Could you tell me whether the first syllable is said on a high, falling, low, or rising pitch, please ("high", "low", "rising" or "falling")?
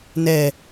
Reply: low